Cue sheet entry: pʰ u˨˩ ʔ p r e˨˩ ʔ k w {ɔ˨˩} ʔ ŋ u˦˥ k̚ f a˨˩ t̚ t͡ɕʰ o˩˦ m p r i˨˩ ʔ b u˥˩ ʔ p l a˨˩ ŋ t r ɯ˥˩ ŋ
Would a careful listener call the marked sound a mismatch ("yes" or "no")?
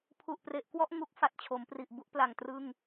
yes